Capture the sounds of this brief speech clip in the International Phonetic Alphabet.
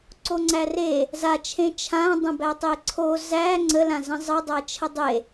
ǀoŋ͡ǀære | zat͡ʃʰẽ t͡ʃʰã dˤə̃bætˤeǀʰo zæ ŋ͡ǀəlãzə̃ zˤə dˤæt͡ʃʰədˤe

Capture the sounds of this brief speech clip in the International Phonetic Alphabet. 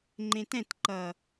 ŋ͡ǃẽtɛ̃t ǃʌ

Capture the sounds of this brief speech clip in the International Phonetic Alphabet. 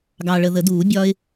ɡɑ˨ɭə˨ðə˨˩˦duː˨˩˦ bʲɒː˥ɪ̯

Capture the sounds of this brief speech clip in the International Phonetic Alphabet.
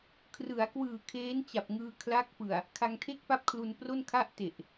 kʰrɯ˩˦a̯kwɯː˨˩ kʰeː˦˥nt͡ɕa˨˩p̚ŋɯː˧ kʰla˦˥k̚pɯ˨˩a̯ | kʰa˧ŋtʰe˥˩k̚pa˥˩p̚kʰlu˧n pro˥˩nkʰa˥˩ʔte˨˩ʔ

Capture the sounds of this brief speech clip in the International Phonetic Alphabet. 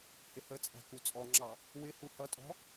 hɪhət͡sʼæ̤ kut͡sʼɔŋ͡ǁɑ | wɪ huhʌtʼɔ̤

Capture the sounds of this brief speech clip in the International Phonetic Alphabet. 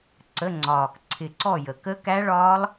ǀə˧˥˧ŋ͡ǀɒː˨˩k ǀʰɪ˨˩ǀɔ˦˨ jə˨˩ kə˦˥kæ˦˥ɭɒː˦˥lˠ

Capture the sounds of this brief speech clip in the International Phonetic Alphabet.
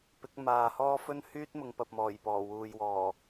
pɪ˨˥k̚ maː˨hɔː˥ fɵ˥n hyː˥t̚mʊ˨˧ŋpɐ˨p̚mɔː˨˩j pɔː˨˩wuː˨jwɔː˨˩

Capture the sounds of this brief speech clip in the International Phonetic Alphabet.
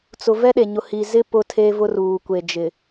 t͡sʊ˨ vɛ˦ɗe˨ɲʊ˨ hi˨zɪ˦ pʊ˦tʰe˦vʊ˦ruː˨ kʷe˨d͡ʒɪ˨

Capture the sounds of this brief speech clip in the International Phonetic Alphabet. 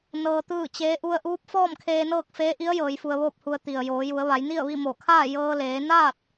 nɤː˧t̪ɯː˥˨t͡ɕeː˧˥ ʔu˧ə̯ʔuː˧˥p̚ fɔː˥˨mkʰeː˧nɤː˥˨k̚ feː˧˥ʔi˧˥ə̯ jɤː˩˧jfu˧ə̯ʋoː˥˨p̚hu˧ə̯ t̪i˩ə̯joː˩˧ju˩˧ə̯ ʋa˩˧jni˥˨ə̯ʋi˥˨ mo˧˩kʰaː˥˨ jɤː˧leː˩˧naː˥˨t̚

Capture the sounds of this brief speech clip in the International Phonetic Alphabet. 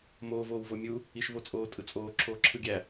moː voːwvomʲu | iʃvot͡sʼoː tʼɯt͡sʼoː ǁʰoːǁʰɯɡʲæ

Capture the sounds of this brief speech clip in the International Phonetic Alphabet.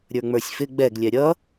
ɾʲə˞ŋ͡mə˞sʲfɪ ɡ͡bɛɡ lʲɛɾʲʌ

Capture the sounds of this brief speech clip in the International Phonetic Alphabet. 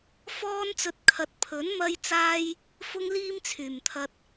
fɔː˥nt͡sɵ˧t̚ kʰɐ˨˥t̚pʰɵ˨˥n mɐ˧jt͡saː˧j | fʊ˥ŋliː˥m t͡sʰyː˨˩mt̪ʰɐ˧t̚

